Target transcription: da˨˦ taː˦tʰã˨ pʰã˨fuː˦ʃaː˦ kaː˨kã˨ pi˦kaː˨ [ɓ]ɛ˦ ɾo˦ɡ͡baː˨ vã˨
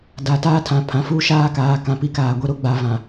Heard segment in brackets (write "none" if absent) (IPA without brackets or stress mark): ɡʷ